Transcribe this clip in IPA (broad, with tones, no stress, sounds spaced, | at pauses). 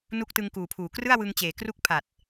n u˦˥ k̚ t ɯ˧ ŋ k uː˨˩ pʰ uː˨˩ k r ɯ˥˩ a̯ w ɯ˧ ŋ t͡ɕ eː˨˩ k r u˥˩ k̚ pʰ a˨˩ t̚